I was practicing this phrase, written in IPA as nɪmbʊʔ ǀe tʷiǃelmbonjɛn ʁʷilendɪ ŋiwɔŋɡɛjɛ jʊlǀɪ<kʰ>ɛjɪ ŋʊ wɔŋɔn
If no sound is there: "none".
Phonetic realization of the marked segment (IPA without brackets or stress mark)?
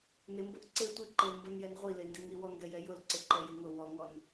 ǃ